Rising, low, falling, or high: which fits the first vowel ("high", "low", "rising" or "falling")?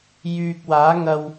low